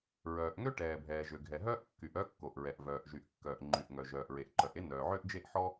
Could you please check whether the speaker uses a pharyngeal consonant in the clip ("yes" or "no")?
yes